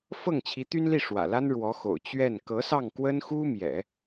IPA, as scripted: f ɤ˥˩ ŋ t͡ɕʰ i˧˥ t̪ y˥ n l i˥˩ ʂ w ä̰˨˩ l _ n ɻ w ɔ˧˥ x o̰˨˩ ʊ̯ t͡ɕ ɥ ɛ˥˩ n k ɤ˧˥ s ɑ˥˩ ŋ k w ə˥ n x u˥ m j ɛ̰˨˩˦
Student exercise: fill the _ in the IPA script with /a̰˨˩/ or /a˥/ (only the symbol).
a˥